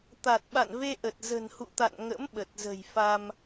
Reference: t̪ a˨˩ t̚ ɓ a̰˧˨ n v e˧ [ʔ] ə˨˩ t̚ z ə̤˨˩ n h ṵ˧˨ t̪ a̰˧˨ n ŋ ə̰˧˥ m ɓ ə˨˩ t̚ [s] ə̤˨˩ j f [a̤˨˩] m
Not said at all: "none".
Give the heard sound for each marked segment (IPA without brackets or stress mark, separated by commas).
ʔ, z, a˧